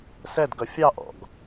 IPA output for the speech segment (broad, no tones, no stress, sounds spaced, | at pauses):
s ɛ d ɡ ʌ fʲ ɑ ʔ ɔ̰ ɡ